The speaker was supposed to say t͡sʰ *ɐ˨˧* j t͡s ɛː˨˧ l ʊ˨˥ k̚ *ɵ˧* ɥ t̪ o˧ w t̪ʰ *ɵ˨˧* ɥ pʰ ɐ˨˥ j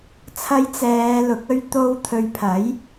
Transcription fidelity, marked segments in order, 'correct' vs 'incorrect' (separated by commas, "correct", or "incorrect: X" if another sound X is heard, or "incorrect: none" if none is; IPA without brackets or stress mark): correct, correct, correct